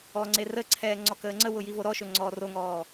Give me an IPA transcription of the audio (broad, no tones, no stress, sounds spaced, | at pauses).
ɔ ŋ͡ǀ e r ə ǀʰ ɛː ŋ͡ǀ ɔ k əː ŋ͡ǀ ə w ʊ j i v o ɾ ɔ ʃ ɵ ŋ͡ǀ ɔː r o ŋ ɔː